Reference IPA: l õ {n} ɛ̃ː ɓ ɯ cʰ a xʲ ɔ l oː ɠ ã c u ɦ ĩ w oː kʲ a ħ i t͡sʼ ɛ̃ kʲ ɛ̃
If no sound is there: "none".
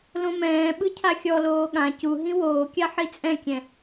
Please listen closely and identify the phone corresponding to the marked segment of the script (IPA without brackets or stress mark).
m